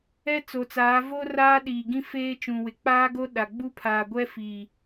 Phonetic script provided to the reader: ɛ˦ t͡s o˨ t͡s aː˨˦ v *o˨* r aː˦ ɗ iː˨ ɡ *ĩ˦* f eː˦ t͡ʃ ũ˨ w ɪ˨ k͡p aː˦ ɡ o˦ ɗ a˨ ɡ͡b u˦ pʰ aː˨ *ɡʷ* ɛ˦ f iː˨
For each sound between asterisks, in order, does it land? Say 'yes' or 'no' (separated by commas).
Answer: no, yes, yes